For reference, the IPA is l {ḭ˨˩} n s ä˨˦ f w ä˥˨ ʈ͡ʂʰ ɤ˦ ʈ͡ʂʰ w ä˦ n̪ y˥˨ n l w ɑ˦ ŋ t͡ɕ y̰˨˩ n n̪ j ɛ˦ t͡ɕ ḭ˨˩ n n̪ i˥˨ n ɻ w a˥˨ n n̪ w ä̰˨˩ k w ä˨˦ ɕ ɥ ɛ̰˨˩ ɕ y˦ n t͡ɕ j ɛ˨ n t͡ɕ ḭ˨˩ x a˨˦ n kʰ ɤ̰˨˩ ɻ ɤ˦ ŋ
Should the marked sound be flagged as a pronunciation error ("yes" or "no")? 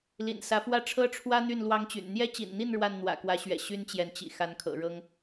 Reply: no